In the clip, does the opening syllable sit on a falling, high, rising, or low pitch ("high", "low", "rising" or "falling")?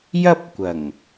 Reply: high